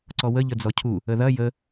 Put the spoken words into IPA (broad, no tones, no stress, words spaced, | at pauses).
ǀɔwə ʎəd͡zɔcʰu | əðɐ jə